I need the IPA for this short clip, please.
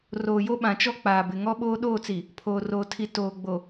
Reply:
r oː˨ j o˦ ɓ ã˨ t͡ʃ ɔ˦ k͡p aː˨ b ɪ˨ ŋ ɔ˦ ɓ oː˦ ɗ oː˦˨ t͡s i˨ | pʰ oː˨ r oː˨ tʰ i˨ t oː˨ ɡ͡b o˨

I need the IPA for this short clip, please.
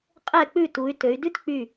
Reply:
qʼ ɛ˧˩ k͡p ʉ˧˩ t u˩˧ y̯ t ø˩˧ y̯ d ʉ˦ t k͡p y˧˩

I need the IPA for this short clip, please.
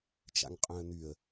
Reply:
t͡ʃ a̰ ŋ qʼ œ̃ ə̯ n̪ y ə̯

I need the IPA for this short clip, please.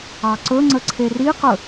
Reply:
ɑ ǀ ɵ ŋ͡ǀ ə ǀʰ e r i q ɵ

